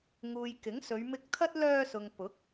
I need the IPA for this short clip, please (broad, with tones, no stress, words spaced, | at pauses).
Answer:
ŋuː˨j kɪ˨˥ŋsɵ˨˧ɥmɪ˧k̚t̪ʰɐ˥t̚ lœː˧sʊ˨ŋ pʊ˨˥k̚